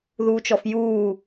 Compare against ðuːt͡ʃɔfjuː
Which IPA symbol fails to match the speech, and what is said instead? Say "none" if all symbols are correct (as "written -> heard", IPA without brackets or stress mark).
none